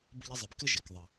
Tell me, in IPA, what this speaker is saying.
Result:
b ə˦ ʎ ɘ˦ zˤ ɘ˨ b k ɘ˥ ʒ e˩ k ðˤ ə˨

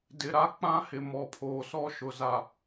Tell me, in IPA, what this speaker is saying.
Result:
d ɪ˨ ɾ a˦ k͡p ã˦ h ɪ˨ m ɔ˨ pʰ oː˨ s ɔ˦ ʃ ʊ˨ z a˨

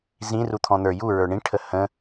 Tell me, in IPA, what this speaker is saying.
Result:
z ĩ r u t̪ʰ ɔ̃ n̪ ə˞ j u ɹ ə˞ ɳ ĩ ʈʰ ə h ə̃

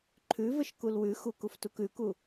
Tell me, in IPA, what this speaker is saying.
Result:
ǃʰ ʉ v ə ʃ k u l w ʉ x u k u f t u k ʉ k u

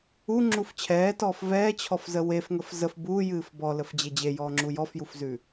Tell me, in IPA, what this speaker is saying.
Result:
u ŋ͡ǁ u f t͡ɕʰ ɛː t ɔː f v ɛː t͡ɕʰ ɔ f z ə w e f ŋ ə f z ə f b uː j ɨː f b ɔ l ə f d͡ʑ e d͡ʑ e j ɔː ŋ͡ǁ u j ɔ f j u f z ʉ

